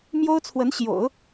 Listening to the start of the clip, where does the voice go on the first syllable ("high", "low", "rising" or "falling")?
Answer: high